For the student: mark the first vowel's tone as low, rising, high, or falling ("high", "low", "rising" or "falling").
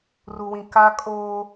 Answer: low